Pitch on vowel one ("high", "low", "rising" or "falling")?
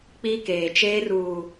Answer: high